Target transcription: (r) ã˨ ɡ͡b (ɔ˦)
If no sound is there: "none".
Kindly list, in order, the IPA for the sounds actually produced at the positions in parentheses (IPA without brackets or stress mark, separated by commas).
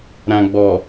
ɾ, ɔ˨